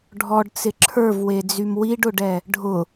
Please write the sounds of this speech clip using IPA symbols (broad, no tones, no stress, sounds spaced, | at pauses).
ɖʱ ɔ ɖ t͡s ɪ ǁʰ ə˞ v w e d͡z y m w i ɖ ʊ ɖ ɛ | ɖʱ ʊ